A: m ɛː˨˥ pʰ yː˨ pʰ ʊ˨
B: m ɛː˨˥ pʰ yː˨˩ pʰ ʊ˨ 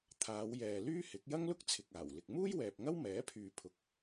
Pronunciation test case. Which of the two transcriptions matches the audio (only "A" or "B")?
A